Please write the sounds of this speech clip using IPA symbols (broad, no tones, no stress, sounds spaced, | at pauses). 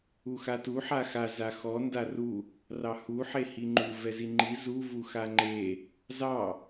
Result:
u x a t u ħ a x a z a x ɔ n d a r u | r ɑ h u ħ e h i ŋ͡ǃ u v ɛ z i ŋ͡ǃ i z u v u x a ŋ͡ǃ e | z ɑ